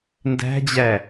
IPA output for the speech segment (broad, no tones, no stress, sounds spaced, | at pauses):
n d æ̤ d͡ʑ æ